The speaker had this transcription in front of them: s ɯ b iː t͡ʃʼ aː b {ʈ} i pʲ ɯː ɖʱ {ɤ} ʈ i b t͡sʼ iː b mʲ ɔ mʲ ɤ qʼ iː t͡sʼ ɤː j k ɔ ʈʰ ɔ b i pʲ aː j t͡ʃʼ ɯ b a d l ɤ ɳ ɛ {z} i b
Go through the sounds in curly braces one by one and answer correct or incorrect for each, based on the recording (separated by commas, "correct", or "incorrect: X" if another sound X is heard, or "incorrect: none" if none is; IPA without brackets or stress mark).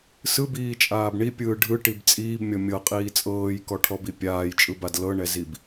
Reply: incorrect: ɳ, incorrect: ɯ, correct